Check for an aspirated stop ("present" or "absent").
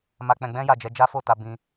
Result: absent